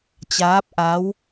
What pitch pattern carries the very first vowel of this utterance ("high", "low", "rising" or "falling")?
rising